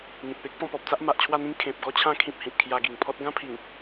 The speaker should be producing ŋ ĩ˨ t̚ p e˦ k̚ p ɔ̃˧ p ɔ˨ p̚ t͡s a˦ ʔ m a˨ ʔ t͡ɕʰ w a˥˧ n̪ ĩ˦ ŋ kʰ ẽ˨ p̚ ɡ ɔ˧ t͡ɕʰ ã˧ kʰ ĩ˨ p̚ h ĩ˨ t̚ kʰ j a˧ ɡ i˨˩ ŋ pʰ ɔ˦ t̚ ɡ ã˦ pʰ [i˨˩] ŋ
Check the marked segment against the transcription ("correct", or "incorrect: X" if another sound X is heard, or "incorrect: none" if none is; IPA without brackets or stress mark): correct